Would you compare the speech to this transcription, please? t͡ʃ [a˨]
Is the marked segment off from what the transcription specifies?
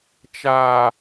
no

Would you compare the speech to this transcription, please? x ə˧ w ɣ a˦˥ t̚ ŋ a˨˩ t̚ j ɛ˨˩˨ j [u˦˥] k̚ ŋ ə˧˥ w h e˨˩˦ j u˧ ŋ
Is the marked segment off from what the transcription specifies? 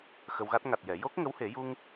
yes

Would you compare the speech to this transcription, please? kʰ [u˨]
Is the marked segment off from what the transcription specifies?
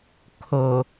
yes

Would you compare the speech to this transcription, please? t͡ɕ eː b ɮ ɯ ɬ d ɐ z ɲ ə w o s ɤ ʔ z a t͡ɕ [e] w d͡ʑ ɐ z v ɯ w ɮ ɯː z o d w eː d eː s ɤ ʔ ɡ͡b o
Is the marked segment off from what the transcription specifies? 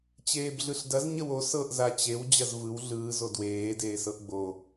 no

